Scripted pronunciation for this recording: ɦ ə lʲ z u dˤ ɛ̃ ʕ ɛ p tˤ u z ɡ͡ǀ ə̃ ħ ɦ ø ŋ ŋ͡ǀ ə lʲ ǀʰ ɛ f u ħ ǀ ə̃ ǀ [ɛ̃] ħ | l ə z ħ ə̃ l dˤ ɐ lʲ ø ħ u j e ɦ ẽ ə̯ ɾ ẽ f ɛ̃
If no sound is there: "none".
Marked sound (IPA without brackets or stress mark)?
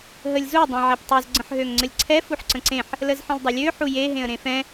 ẽ